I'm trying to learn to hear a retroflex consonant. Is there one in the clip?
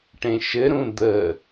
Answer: yes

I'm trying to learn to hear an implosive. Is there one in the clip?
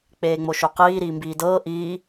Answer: no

